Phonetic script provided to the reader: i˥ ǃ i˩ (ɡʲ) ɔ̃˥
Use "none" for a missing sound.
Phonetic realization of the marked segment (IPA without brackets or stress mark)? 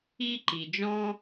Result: d͡ʒ